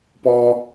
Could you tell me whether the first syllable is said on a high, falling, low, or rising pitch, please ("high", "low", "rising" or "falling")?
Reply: high